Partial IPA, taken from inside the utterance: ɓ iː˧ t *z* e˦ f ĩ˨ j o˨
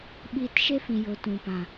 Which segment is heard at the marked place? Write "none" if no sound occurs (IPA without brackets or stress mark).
ʃ